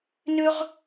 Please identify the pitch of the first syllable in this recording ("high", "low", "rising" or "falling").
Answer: high